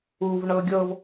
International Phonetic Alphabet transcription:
u v ɳ ɤ ɡʲ ɤ v

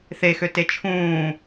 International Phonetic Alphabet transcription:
θ e x ø t e t͡ʃʰ ũː

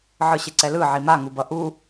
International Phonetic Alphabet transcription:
ʕ ɯ ɕ e ǀ ɛ l ɯ ʕ i m a ŋ u b ʌ ʔ u

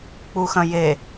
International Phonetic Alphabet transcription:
k͡p u x ɐ̃ j e

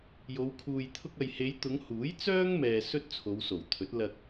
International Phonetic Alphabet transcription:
j o˨˧ w kʰ uː˨ j t̪ʰ ʊ˧ k̚ ɐ˨ j h e˨˧ j t̪ ʊ˨˧ ŋ h uː˨˥ j t͡s œː˥ ŋ m ɛː˨ s ɵ˥ t̚ t͡sʰ o˨˧ w s o˨˩ w t̪ʰ ɵ˨˥ t̚ l ɐ˧ k̚

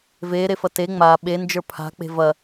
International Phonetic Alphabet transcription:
v eː ɾ e f ɐ t e ŋ͡m a ɓ e n d͡ʒ ə˞ pʰ a̤ k͡p e̤ v ɐ

